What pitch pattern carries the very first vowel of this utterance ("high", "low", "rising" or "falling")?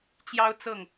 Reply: high